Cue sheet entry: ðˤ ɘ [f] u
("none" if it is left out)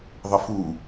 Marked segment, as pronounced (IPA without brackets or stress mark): f